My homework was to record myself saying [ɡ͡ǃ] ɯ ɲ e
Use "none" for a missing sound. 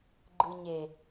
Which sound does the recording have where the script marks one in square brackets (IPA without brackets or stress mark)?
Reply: ɡ͡ǃ